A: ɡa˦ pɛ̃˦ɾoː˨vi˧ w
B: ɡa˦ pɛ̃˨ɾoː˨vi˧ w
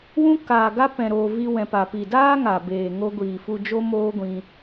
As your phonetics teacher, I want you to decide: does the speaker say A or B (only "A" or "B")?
B